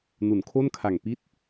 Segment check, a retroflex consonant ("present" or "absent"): absent